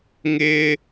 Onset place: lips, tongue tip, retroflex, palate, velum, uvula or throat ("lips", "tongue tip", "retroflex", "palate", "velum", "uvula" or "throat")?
velum